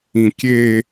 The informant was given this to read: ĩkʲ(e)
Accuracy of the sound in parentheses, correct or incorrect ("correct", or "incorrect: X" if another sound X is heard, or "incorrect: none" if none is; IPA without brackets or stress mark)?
correct